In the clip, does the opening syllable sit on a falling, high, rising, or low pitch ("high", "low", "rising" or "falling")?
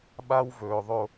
high